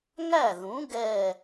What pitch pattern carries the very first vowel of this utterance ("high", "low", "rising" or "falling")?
falling